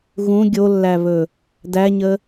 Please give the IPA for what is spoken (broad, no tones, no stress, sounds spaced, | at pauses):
ɣ ũ ɡʲ o lː æ β ɵ | d æ ɲ ə